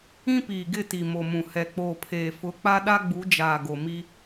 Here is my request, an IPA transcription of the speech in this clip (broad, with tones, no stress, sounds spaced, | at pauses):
ĩ˦ p iː˨ ɡ ɪ˦˨ t i˨ m o˨ m ũ˨ h ɛ˨ k͡p oː˨ pʰ eː˨ f ʊ˨˦ k͡p a˦ ɗ a˦ ɡ͡b u˨˦ d͡ʒ aː˨ ɡ o˨ m i˦